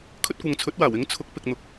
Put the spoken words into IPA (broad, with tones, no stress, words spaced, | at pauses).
kʰɵ˥t̚kʷɐ˨ŋt͡sʰɵ˨˥t̚waː˨˩w ɪ˨˥ŋt͡sʰʊ˨˥k̚ pɪ˨k̚n̪ʊ˨˥k̚